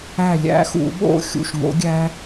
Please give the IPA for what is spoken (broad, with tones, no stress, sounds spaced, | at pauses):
æ˧˩ lʲ æ̰˨˥ x ṵ˧˩˧ ɓ o̰˥˨ xʲ ṵ˧˩ ʃ ŋ o̰˨˥ ɡʲ æ˦˥